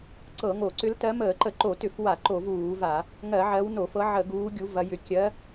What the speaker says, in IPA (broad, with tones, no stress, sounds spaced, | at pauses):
ǀ ɤ˧˩˧ ŋ o˧˩˧ ǀ ʏ˨˦ l t ɜ˨˦ m əː˧˩˧ ǃ ə˧˩˧ ǃ o˧˩˧ t ʏ˧˩˧ f w a˧˩˧ ǃ o˧˩˧ v uː˧˩˧ v a˧˩˧ | ŋ ɜ˧˩˧ ʕ ɜ˨˦ w n o˧˩˧ f ɤ˨˦ ʕ ə˧˩˧ ɡ uː˨˦ ɡʲ u˨˦ v ɐ˨˦ j ʏ˨˦ kʲ ɜ˨˦